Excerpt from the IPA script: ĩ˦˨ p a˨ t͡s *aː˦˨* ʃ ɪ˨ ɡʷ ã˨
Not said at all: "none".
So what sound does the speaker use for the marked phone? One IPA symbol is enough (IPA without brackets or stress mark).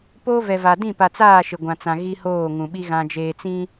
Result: aː˦˨